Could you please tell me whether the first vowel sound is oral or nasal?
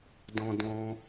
nasal